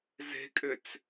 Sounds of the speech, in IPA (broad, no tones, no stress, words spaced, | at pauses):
ze̤kʼʏt͡s